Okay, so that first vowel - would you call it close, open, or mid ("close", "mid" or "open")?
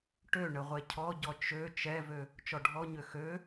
mid